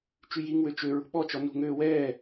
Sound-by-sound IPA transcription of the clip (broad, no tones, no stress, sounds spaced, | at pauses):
t͡ʃ y j i ŋ w ø t͡ʃ ø ɹ ṳ ɓ ɔ t͡ʃ ɔ n ṳ ŋ øː w ɛː